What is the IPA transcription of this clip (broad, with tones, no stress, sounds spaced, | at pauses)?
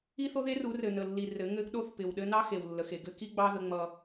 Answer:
i˦ θ o˦ ð e˦ r u˨˦ r ɘ˨ n ə˨ lː i˨ r ɘ˨˦ ŋ ɘ˦ ɡ ɗ o˦ θ p ɪ˨ w ɗ ɘ˦ n ɑ˦ x e˨ w lː ə˨ x e˨ ɡ ɘ˦ k i˦ ɡ͡b ɑ˦ ð ə˦ ŋ͡m ʌ˦